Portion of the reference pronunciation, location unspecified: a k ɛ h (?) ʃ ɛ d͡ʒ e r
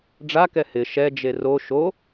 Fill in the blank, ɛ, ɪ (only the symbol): ɪ